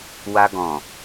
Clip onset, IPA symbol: w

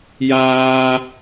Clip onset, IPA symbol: j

